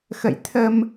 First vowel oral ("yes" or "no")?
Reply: yes